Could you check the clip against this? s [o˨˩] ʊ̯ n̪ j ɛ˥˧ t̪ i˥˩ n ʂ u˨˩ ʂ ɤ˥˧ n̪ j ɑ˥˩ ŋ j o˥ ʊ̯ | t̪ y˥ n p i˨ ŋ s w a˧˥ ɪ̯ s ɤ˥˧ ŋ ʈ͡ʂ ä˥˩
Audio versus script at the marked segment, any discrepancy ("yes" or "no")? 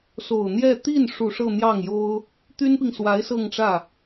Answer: no